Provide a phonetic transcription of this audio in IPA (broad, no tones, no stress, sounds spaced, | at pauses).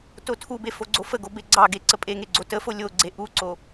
t o tʰ u b e f o ɡ͡ǀ o f ə ɡ o b e ɡ͡ǀ ɑ ɡ e ǀ ə pʼ e ŋ e ɡ͡ǀ o t ə f o lʲ o ɡ͡ǀ e ʔ u ǀ o